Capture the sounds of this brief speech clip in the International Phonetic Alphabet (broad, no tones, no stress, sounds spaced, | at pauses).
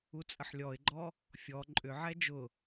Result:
u t͡sʼ ə ħ lʲ ɔ ɪ̯ ɡ͡ǃ ɔ | fʲ ɔ ǃʼ ʏ ʕ ɛ d͡ʒ ʊ